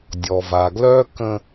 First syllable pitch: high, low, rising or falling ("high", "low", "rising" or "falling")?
low